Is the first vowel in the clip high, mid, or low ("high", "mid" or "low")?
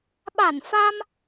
low